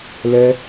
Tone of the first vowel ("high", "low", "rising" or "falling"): high